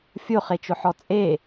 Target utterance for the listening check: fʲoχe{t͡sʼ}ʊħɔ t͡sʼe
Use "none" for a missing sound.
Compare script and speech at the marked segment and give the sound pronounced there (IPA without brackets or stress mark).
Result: t͡ʃ